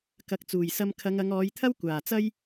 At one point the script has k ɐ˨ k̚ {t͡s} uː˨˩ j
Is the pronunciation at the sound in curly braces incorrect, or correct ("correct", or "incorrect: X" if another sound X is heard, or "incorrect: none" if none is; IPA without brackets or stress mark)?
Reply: correct